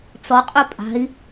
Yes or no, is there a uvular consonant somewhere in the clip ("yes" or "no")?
yes